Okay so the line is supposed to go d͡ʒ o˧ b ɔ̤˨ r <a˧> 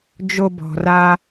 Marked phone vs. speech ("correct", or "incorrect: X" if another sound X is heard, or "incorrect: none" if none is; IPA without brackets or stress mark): correct